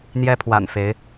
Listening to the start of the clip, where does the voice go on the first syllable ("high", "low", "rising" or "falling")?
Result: high